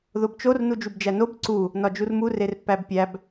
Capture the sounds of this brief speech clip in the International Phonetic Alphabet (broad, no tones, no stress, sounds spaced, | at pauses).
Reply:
ð o b t͡ʃ o r n u d͡ʒ u b d͡ʒ æ n o b ǀ u | n ɒ d͡ʒ u r m u r e r pː æ b pʲ æ b